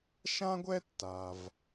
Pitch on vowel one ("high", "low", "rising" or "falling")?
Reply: high